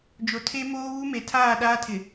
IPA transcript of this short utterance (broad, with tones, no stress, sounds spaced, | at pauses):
d͡ʒ o˨ tʰ e˦ m oː˦ β u˦ m e˨ tʰ aː˦˨ ɗ aː˦ tʰ ɪ˨